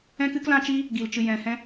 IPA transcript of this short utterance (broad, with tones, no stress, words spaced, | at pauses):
ɛ̃˦kɨ˦klã˦t͡ʃiː˦ | ɡi˧lt͡ʃɨ˧jɛ̃˧hɛ̃˦